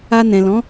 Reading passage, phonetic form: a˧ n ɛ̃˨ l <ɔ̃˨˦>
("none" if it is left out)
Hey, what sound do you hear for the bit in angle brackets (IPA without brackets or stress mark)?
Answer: ɔ̃˨˦